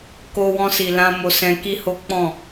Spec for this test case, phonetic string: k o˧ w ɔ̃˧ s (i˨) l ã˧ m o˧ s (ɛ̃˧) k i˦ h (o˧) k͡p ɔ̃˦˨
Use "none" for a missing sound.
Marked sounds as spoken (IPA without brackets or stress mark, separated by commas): i˨, ɛ̃˧, o˦